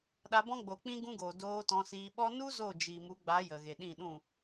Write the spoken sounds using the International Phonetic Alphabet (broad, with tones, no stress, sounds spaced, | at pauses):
ɗ a˧ b ɔ̃˦ ɡ͡b o˨ k͡p ĩ˦ ɡ ũ˦ ɡ oː˨ d oː˧ t ɔ̃˧ s iː˧ ɓ ɔ˦ n u˦ z o˦˨ d͡ʒ i˨ m u˨˦ ɡ͡b a˨˦ j ə˨ ɣ e˨ ɗ ĩ˦˨ ɗ ũ˦˨